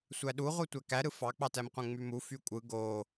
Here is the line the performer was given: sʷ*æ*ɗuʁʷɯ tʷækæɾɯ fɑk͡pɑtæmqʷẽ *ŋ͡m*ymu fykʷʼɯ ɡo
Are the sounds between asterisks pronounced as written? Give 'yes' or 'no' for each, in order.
yes, yes

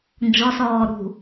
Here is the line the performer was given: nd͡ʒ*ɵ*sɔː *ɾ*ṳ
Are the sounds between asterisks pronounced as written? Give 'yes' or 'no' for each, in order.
no, yes

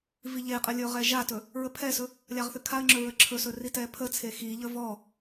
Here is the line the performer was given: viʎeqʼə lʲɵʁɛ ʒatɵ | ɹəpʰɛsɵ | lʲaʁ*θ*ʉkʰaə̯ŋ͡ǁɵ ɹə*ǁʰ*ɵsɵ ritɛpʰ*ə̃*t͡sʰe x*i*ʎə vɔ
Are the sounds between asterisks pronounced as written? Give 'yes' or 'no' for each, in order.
yes, yes, no, yes

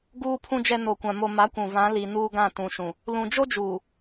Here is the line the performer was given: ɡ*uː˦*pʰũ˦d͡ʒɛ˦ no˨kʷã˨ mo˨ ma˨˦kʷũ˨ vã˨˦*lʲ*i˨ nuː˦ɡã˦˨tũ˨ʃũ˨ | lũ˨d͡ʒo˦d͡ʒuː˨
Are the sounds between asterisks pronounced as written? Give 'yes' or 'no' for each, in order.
yes, no

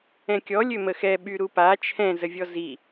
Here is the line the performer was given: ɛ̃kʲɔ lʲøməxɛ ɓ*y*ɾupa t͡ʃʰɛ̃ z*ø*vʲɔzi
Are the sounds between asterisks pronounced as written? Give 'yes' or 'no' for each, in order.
yes, no

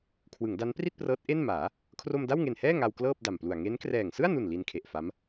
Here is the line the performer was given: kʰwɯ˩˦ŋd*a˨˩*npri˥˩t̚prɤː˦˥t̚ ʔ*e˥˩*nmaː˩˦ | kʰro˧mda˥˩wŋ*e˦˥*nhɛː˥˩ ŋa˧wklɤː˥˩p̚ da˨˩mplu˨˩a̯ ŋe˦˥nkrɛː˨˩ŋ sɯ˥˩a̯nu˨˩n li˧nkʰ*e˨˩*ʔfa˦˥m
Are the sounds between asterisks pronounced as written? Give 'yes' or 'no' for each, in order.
no, yes, no, yes

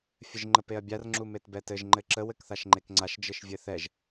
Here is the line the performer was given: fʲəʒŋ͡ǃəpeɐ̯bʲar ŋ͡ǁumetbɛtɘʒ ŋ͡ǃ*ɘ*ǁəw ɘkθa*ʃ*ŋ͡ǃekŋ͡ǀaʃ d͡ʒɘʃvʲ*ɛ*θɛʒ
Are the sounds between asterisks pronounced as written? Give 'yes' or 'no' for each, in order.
yes, yes, no

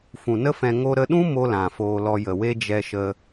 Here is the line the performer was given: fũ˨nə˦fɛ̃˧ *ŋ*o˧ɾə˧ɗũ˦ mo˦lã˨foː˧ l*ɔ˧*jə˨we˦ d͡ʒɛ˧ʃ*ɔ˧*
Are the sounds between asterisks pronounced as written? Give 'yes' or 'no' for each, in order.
yes, yes, no

